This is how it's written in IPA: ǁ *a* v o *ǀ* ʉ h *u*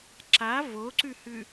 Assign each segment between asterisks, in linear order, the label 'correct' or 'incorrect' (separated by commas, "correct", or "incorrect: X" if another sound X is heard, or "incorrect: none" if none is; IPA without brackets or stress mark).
correct, correct, incorrect: ʉ